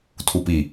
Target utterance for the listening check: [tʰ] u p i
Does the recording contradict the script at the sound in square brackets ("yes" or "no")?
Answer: no